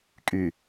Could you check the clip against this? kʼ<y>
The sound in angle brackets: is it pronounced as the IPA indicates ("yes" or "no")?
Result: yes